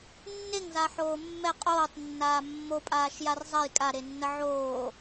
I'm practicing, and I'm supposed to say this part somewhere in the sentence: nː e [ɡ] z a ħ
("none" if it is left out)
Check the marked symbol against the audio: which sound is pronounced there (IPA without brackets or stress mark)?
ŋ